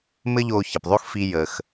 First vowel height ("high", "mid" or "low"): mid